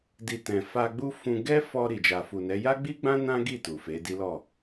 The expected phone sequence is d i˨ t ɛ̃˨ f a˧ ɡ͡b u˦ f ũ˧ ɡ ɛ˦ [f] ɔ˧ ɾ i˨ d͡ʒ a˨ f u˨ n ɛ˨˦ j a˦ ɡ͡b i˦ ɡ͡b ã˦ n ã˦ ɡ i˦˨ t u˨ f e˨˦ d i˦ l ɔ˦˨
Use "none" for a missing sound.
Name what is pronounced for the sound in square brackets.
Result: f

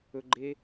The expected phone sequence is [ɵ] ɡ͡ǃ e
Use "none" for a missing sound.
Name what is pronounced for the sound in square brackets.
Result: ɵ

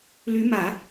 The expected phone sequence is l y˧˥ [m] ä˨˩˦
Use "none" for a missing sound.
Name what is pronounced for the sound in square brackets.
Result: m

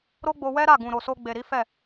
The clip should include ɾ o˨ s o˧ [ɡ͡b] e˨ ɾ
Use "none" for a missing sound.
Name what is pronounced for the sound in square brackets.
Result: ɡ͡b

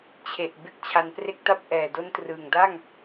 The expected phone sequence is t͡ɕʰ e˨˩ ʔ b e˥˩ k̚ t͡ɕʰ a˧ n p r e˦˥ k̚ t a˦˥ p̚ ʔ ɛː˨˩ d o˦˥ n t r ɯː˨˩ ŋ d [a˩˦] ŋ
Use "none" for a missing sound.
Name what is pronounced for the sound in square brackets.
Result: a˥˩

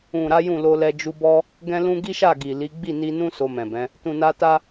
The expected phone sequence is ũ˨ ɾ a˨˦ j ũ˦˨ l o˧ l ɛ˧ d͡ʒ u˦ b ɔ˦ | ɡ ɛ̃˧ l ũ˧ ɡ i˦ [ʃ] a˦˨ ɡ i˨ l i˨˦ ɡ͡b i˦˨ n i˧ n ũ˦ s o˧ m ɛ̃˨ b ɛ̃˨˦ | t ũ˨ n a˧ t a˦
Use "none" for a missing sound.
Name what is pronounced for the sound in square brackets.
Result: ʃ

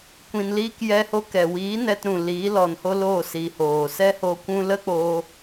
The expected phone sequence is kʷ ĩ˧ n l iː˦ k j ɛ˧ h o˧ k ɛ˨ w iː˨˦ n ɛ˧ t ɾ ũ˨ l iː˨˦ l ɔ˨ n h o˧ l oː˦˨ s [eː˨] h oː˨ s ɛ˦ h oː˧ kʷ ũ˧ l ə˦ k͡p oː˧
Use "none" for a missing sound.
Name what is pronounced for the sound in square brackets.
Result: iː˨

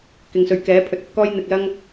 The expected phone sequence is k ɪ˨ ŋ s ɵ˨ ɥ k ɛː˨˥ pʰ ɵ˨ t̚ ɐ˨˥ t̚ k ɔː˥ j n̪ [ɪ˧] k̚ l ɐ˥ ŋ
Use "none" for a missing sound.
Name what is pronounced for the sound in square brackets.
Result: ɪ˧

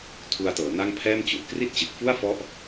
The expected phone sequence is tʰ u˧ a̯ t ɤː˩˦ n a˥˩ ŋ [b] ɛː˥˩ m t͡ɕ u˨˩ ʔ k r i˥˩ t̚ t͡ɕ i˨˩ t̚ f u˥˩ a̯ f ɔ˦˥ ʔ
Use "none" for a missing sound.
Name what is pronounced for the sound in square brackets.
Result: pʰ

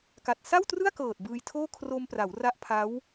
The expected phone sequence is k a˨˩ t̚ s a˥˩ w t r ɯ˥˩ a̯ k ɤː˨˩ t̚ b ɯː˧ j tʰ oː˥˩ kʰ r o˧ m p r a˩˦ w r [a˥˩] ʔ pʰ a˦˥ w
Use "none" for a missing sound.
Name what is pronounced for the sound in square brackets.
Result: a˦˥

